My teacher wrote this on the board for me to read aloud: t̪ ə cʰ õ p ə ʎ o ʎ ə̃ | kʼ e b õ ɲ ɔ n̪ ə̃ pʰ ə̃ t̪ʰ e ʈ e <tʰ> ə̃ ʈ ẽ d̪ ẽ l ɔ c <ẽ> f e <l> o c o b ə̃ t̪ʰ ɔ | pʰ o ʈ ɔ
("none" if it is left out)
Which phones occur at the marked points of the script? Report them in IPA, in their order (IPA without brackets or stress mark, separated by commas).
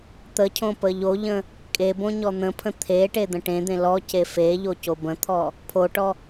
d̪, e, ʎ